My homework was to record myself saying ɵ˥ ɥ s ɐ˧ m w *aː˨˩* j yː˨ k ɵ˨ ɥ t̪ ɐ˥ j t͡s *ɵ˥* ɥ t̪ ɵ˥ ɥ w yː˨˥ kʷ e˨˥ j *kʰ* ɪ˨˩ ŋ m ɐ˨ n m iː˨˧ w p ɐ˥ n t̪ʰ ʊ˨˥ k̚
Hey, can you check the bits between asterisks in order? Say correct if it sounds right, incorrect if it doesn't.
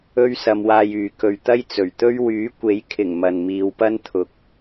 incorrect: aː˧, incorrect: ɵ˨˩, correct

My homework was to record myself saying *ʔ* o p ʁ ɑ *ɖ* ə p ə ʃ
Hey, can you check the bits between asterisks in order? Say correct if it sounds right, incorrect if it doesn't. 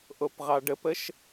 correct, correct

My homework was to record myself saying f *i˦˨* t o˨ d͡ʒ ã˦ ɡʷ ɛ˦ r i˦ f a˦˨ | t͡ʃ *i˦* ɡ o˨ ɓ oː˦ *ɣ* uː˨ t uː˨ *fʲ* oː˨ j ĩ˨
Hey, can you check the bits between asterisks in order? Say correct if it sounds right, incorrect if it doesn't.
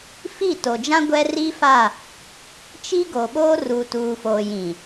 correct, correct, incorrect: r, incorrect: f

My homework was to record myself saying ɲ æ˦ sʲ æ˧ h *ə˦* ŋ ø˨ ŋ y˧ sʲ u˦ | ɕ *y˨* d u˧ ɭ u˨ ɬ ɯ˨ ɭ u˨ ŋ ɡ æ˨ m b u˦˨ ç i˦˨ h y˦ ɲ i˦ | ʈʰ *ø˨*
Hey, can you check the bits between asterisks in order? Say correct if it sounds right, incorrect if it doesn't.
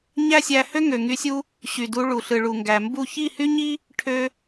incorrect: ø˦, correct, incorrect: ø˧

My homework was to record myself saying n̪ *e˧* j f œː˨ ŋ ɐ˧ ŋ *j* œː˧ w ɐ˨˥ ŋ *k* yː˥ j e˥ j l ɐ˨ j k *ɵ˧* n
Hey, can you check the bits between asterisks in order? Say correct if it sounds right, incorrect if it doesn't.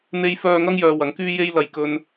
correct, correct, correct, correct

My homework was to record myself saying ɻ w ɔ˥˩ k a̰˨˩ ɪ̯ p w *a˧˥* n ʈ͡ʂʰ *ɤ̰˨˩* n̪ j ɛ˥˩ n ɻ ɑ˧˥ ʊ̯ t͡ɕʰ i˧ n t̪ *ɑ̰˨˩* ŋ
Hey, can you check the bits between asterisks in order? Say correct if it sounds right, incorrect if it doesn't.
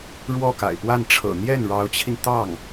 incorrect: a˥˩, correct, incorrect: ɑ˥˩

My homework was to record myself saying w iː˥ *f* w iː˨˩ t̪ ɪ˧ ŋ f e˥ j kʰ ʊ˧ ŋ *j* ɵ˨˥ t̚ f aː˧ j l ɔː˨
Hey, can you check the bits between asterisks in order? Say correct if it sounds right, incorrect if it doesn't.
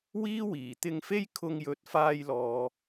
incorrect: none, correct

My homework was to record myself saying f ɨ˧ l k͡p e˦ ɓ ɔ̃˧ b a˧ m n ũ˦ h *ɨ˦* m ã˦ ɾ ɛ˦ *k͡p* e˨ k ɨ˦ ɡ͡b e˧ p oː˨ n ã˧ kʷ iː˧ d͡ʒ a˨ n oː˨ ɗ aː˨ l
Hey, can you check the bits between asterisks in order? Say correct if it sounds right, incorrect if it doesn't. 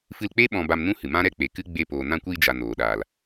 incorrect: ɨ˨, correct

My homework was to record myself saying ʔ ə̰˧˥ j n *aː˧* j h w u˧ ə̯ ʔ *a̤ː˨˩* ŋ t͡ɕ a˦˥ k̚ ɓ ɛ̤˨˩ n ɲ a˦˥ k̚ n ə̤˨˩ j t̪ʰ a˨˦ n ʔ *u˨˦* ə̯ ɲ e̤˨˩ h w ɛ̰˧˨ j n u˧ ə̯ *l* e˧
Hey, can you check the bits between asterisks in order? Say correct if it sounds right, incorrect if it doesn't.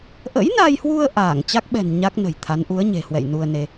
incorrect: a˧, incorrect: aː˧˩, correct, incorrect: n

